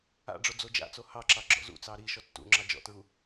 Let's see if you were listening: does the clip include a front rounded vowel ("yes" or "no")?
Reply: no